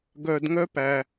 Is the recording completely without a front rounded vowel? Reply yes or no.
no